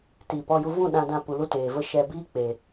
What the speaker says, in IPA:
t iː˨ p ɔ˧ j u˧ v ũ˦˨ ɗ ã˧ d ã˧ p u˨ l u˦ t eː˨ v ə˦ ʃ ɛ˧ b iː˦ k͡p e˨

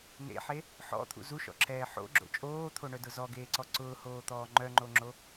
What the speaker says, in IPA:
n ḛ ħ e | ħ ɔ̰ t̪ʰ ṵ z u ʃ ɔ̰ ǁʰ ɛː ħ o̰ ɡ͡ǁ o̰ t͡ʃʼ oː t̪ʰ o ɳ œ d ʊ z ɔ ɡ eː ǀ ɔ ǀ ʊː h oː t̪ ɔː ŋ͡ǃ œ ŋ͡ǃ o ŋ͡ǁ o

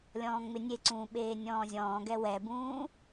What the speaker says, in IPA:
lʲ ɔ̃ː ŋ͡m ɪ nʲ e ǀ ũː ɓ eː nʲ ɔ̃ː zʲ ɔ̃ː ɡ ɛ w ɛ b ũː

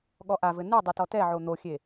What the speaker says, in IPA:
ɠ ɔ ʔ a v ɘ n ɨ dˤ ɨ t ɔ t ɛ ʕ o n̪ o xʲ e

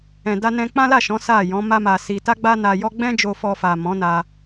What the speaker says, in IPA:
ɛ̃˨ d a˧ n ɛ̃˧ k͡p ã˦ l a˦˨ ʃ ɔ̃˨˦ s a˦˨ j ɔ̃˨˦ m a˦ m a˧ s i˧ t a˦ ɡ͡b a˦ n a˧ j ɔ˦ ɡ͡b ɛ̃˦ d͡ʒ o˧ f ɔ˧ f a˨ m ɔ̃˨˦ n a˧

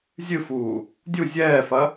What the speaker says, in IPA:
zʲ ɨ f uː | dʲ u zʲ ɛː f ɐ

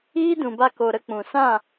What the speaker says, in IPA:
iː˦ d ũ˨ b a˧ k o˨ ɾ ə˧ k͡p ũ˨ s ã˦˨

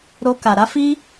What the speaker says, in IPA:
ɾ o˦ k a˧ ɾ a˦ f i˦

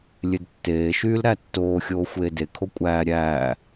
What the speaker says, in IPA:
lʲ e d tː eː ʃ yː l ɾ æ tː oː xʲ oː xʷ eː d e kʰ o kʷʼ æː ɾʲ æː

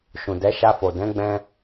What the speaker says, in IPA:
ʃ ũ˨ d ɛ˨˦ ʃ a˧ f o˨ d ɛ̃˨˦ ɡ͡b ɛ̃˧

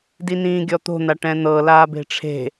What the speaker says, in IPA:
d i n ĩː ɡʲ ɔ t̪ o̤ n̪ a ʈ ɛ̃ n̪ ɤ l aː b e̤ ʈ͡ʂʰ e̤

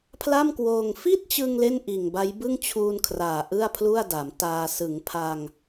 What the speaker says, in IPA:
pʰ l a˥˩ m k w oː˧ ŋ f i˥˩ t̚ t͡ɕ ɯ˧ ŋ l e˥˩ n ʔ iː˨˩ ŋ b a˦˥ j b ɯ˥˩ ŋ t͡ɕʰ uː˧ n kʰ r aː˨˩ ʔ ɯ˥˩ a̯ pʰ l u˥˩ a̯ d a˩˦ m t aː˧ s ɯ˩˦ ŋ pʰ a˧ ŋ

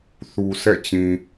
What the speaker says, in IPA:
θ u˨ s ɛ̰˦˨ t͡ɕ ĩ˨

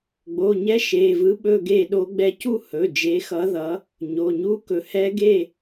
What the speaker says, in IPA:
ɡ͡b o˩˧˩ ɲ ɛ˦˥ ʃ e˩˧˩ v ɯ˦˥ ɓ ɵ˥˧ ɡ e˥˧ ɗ o˦˥ ɡ͡b ɛ˥˧ c u˥˧ h ɵ˩˧˩ d͡ʒ e˨˦ x ʌ˨˦ ð ʌ˨˦ | ɲ o˩˧˩ ɲ u˦˥ k ɵ˨˦ h ɛ˦˥ ɡ e˥˧

